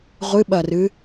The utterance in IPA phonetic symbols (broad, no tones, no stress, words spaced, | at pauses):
ʁʷɨɓɐrɨ